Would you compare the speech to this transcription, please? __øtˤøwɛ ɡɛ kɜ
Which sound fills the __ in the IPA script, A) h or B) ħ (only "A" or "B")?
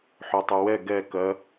B